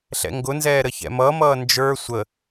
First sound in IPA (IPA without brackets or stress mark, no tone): ɬ